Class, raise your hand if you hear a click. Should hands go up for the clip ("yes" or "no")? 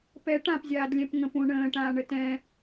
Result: no